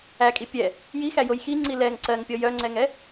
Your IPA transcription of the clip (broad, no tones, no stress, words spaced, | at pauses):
ækʼi pʲɛ | jixæjoj xiŋ͡ǀi lɛŋ ǀɜŋpʲɔ jœŋ͡ǀɛŋɛ